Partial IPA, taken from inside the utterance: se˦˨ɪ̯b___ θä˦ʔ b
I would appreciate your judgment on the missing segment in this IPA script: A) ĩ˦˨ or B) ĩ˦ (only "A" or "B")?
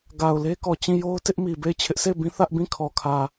B